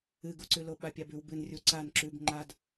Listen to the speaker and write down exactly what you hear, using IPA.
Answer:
ɨɡuǀʉlo ɓapʲabʉw bɨnrʲu ǀan ǁʉb ŋ͡ǃad

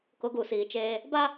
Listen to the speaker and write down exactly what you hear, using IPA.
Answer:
kʊ˨˦ɡu˨siː˨t͡ʃeː˦ | ba˦

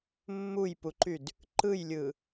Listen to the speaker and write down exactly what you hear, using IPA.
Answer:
mːujpuǃyd | ǃɯjlʲɯ

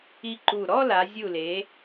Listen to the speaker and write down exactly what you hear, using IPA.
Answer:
i˧ǃu˧˩ ɾɔ˥˧la˩˧zʲu˧˩le˩˧

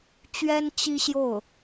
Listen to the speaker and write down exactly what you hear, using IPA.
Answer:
t͡ɕɥɛ˥n t͡ɕi˥ɕjo˥˩ʊ̯

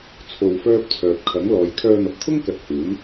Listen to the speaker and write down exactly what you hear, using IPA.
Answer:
t͡sʰo˧wfœː˥p̚ t͡sʰœː˨p̚kʰɐ˨˥ŋlɔː˨˧j kʰœː˧n̪ɐ˨p̚t̪ʰʊ˥ŋkɐ˨t̚ huː˨˥n

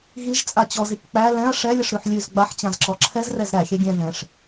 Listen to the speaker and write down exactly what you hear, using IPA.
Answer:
ɣiʒ t͡sʼat͡ɕɔzik k͡pæ lɛ̃ɐ̯ ʂɛlʲəʂ ɾʉħlʲʉz ɡ͡baħt͡ɕãzǁɔ ǁʰɛzrɛz ɾæ xʲɛɡʲɛ̃ ðɛ̃ʂ

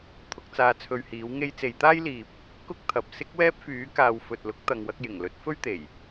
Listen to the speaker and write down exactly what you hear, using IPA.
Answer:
t̪ʰʊ˨˥k̚t͡saː˧t͡sʰɵ˧ɥhiː˨˥w ŋe˧jt͡se˨˧jt̪aː˥j liː˨p̚ | kʊ˥k̚t̪ʰɐ˨p̚ sɪ˥k̚wɛː˥p̚fyː˨˥kaː˨w fɵ˨t̚lʊ˨˥k̚ t̪ɐ˨ŋwɐ˧k̚jɪ˨˩ŋlɵ˨˥t̚ fɵ˥ɥt̪e˨˩j

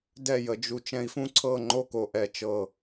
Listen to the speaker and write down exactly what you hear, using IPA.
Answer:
dɛ˥˨jə˧d͡ʒu˧ t͡ʃɛ̃˧i̯fũ˦˥ǀʰɤ˥˨ ŋ͡ǃo˥˨ko˧˩ʔɛ˧˩ t͡ʃɤ˧˩

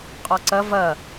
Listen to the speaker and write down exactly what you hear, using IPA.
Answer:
qʼɔǀɐ vɐ

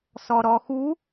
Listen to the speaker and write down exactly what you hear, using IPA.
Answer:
sɔɾɔxu

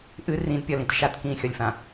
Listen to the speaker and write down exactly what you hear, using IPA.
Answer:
ʔɨ rĩdpʲɒlĩt ʃatkĩːxʲɒlʲfã

